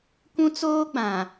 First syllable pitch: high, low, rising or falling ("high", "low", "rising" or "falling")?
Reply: high